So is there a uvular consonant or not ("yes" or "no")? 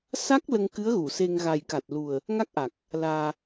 no